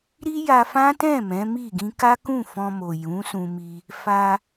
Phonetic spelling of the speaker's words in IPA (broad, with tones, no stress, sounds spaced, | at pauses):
ɾ i˦ j a˧ f ã˦ t ɛ̃˦˨ m ɛ̃˨˦ m i˦˨ ɡ ĩ˧ k a˦ k ũ˦˨ f ɔ̃˧ m o˨ j ũ˨˦ s ũ˧ m i˧ | f a˧